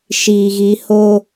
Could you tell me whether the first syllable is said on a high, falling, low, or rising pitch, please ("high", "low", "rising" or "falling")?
low